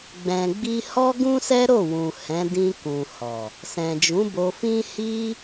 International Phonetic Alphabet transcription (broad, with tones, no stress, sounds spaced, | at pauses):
ɡ͡b ɛ̃˨ ɡ͡b i˧ h ɔ˦ ɡ ũ˦ s ɛ˦ ɾ o˦˨ w ũ˨ h ɛ̃˨˦ d ĩ˧ k ũ˨ h ɔ˨ | s ɛ̃˨ d͡ʒ ũ˨˦ b o˧ f ĩ˦ h i˦